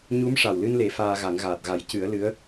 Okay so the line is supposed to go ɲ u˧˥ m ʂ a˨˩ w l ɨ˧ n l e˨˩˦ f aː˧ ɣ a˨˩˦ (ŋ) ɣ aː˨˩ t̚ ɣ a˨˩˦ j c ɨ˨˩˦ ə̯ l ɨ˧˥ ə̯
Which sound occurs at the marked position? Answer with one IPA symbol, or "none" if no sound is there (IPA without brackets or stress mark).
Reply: ŋ